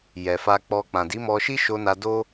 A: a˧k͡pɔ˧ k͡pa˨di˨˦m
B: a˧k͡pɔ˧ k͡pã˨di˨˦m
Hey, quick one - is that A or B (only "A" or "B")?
B